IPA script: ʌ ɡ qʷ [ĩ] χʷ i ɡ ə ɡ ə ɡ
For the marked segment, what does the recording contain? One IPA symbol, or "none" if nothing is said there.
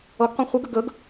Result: ẽ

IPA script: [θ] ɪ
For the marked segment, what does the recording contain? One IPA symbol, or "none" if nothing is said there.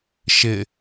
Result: ʃ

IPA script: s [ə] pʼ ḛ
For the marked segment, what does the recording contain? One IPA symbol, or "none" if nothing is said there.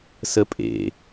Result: ə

